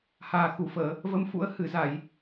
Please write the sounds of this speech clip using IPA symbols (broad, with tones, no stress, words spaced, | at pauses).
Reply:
haː˨˩xu˧˩fəː˧˩˨ | və˨˦mfṵ˧˥ə̯ hɨ˧˩za˧˩˨j